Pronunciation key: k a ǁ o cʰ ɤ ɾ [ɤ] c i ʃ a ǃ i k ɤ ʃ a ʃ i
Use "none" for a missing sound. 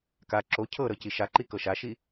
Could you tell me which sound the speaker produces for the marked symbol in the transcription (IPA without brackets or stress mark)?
ɤ